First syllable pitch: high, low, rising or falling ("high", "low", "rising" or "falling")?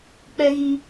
high